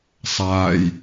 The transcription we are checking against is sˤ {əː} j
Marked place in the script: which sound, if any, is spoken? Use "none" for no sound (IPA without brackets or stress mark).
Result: aː